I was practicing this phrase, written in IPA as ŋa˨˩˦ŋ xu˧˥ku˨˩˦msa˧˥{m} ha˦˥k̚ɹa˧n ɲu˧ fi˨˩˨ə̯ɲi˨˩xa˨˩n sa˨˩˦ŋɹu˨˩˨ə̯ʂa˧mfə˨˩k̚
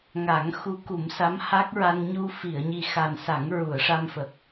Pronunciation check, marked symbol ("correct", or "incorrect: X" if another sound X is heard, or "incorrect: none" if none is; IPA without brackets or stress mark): correct